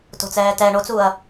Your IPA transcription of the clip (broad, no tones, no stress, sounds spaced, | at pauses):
t o̤ t͡s ɛː t ɛ ɳ o t͡s u ɐ̯